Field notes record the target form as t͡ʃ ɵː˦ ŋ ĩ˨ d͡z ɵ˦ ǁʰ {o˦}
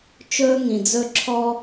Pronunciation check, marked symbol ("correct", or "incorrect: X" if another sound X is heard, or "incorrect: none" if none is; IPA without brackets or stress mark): incorrect: ɔ˦